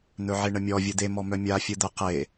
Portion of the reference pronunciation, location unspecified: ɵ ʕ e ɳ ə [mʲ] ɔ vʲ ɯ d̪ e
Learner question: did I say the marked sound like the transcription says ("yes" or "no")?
yes